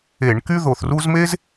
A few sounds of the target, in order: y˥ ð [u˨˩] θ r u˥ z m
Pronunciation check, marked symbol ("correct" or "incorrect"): incorrect